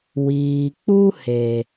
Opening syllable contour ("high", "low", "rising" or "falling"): low